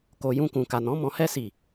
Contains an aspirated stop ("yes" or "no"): no